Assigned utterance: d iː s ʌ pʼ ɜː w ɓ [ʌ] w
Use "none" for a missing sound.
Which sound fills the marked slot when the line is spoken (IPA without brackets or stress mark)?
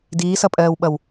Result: ʌ